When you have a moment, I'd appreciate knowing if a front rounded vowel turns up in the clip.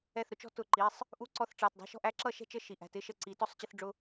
no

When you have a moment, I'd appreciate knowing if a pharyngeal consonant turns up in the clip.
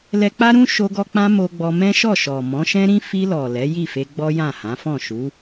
no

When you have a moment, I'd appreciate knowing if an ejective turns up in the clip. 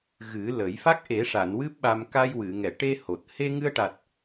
no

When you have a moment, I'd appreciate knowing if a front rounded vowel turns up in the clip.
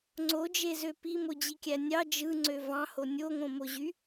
yes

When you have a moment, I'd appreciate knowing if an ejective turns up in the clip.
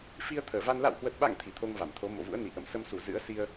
no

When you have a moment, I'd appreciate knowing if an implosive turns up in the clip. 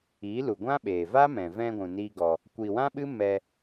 yes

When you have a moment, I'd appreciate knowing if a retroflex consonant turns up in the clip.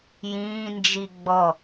no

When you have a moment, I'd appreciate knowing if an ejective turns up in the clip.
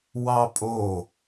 yes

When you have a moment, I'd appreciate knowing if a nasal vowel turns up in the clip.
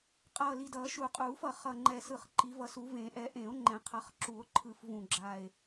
yes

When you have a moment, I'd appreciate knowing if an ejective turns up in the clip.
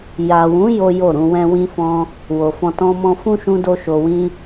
no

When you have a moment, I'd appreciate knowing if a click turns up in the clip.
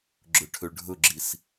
yes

